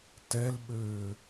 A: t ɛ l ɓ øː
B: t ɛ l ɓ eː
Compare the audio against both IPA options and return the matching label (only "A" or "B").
A